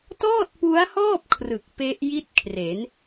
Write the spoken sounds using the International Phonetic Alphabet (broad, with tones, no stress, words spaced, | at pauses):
tɔː˥˩t̚pu˦˥a̯hɔː˥˩p̚ kʰrɯ˨˩k̚pe˦˥ʔ ji˥˩t̚kʰre˩˦n